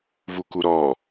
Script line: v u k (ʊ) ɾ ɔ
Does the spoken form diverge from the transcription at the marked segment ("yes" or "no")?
yes